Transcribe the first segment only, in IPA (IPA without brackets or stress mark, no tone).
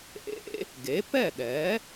ʔ